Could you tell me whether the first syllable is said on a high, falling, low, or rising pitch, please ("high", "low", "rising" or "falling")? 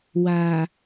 low